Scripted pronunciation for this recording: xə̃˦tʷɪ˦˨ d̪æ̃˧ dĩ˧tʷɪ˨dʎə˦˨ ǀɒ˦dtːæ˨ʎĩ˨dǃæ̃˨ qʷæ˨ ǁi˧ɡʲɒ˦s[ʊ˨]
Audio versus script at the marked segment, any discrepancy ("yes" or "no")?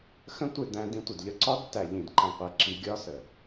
yes